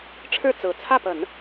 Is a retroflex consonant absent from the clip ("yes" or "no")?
no